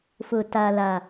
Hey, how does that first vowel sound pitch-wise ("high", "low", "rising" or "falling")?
low